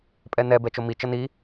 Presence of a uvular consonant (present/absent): absent